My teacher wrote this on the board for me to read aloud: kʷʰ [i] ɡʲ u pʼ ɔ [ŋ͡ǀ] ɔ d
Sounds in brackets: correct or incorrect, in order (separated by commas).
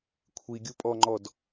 correct, incorrect